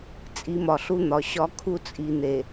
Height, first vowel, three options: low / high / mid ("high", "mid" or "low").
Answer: high